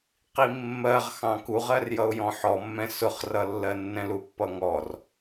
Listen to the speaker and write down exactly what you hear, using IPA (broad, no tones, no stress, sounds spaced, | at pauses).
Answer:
q i mː ɜ ʁ x ɑ̃ k u ʁ ɜ r j ʌ ʊ̯ j ɔ̃ ħ ɔ mː ɛ̃ s ʊ χ r ʌ lː ɜ nː ɛ̃ l u pː ʌ ŋ ɔ r